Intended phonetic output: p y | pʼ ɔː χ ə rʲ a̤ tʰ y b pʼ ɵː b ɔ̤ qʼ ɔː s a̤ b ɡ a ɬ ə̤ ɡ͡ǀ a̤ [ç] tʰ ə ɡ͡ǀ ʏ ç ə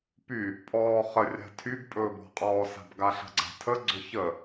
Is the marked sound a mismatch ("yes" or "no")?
yes